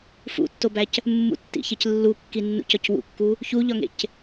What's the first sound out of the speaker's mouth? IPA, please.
f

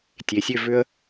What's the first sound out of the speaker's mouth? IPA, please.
tʲ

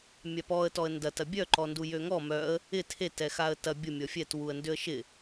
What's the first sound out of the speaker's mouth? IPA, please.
mʲ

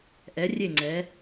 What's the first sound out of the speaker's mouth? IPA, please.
ʔ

